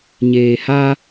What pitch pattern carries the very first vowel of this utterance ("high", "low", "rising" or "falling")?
low